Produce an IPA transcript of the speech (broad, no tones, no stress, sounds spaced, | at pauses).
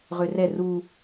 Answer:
ʁ ø r ɛ r u